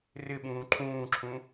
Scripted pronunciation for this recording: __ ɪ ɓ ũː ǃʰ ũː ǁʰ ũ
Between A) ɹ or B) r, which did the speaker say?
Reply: B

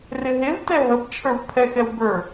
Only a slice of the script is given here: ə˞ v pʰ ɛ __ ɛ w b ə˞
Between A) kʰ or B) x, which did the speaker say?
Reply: B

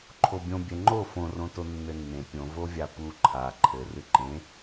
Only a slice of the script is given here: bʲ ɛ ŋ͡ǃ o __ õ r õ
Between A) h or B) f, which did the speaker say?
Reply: B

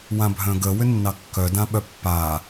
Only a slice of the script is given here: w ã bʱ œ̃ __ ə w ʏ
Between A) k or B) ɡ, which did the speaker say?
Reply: B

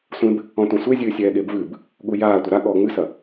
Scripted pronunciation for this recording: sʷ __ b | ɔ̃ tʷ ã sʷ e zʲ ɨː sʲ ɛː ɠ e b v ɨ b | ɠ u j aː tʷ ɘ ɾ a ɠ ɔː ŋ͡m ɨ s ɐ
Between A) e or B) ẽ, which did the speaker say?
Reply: B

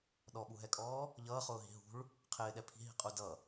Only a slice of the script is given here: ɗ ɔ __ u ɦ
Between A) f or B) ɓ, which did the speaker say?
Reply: B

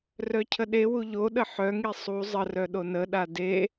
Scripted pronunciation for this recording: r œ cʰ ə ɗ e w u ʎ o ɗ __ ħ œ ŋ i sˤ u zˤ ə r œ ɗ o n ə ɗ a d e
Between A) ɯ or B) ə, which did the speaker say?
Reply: B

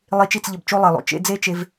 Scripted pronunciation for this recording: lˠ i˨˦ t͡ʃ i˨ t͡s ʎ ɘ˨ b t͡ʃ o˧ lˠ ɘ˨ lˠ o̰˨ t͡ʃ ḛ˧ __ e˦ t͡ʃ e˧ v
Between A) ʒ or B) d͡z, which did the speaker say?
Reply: B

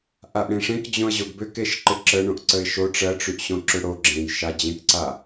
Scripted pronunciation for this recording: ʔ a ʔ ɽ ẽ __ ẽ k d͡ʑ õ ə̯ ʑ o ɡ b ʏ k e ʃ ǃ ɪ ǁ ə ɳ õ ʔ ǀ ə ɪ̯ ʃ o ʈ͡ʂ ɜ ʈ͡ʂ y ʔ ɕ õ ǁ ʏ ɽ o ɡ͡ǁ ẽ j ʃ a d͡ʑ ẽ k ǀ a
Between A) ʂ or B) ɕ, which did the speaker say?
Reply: A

